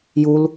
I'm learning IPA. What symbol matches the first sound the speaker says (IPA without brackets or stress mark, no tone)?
j